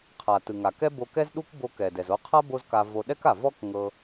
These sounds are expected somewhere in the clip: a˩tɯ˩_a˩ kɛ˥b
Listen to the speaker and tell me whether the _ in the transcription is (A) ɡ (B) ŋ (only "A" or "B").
B